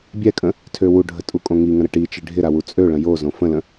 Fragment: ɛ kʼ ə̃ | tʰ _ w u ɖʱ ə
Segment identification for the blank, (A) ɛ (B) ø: B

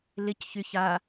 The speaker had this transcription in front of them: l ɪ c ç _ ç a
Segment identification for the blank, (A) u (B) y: B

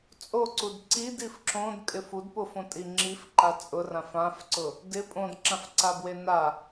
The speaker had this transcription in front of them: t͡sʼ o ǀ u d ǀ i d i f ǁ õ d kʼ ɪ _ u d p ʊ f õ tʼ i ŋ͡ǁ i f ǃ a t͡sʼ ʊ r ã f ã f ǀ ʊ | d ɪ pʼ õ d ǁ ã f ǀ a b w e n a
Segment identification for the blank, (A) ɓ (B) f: B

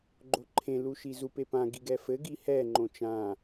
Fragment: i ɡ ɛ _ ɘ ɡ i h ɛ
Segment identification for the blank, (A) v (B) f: B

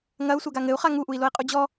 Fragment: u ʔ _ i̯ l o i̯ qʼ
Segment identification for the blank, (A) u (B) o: A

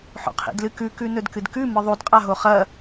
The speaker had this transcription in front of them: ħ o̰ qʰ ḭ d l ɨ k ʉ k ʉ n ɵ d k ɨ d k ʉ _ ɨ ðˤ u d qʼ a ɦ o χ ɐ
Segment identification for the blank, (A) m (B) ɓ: A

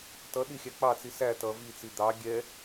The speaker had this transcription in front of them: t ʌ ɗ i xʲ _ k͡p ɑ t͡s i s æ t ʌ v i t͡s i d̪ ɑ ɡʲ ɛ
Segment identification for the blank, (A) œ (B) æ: B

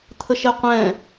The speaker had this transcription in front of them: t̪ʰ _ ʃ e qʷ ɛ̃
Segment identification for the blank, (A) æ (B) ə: B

